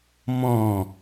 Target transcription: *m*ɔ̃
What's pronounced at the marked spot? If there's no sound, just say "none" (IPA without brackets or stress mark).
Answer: m